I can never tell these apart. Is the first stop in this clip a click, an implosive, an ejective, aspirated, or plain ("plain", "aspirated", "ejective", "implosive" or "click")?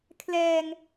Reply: aspirated